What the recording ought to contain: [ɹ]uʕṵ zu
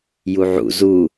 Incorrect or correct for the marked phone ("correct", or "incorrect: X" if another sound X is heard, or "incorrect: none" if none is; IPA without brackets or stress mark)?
incorrect: j